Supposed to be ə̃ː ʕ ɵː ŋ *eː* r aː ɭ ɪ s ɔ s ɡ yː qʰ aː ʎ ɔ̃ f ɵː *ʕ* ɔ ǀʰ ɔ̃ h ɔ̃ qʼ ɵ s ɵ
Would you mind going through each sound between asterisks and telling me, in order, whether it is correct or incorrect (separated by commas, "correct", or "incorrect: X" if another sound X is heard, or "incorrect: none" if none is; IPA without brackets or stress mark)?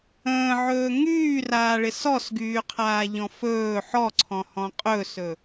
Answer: incorrect: yː, incorrect: ħ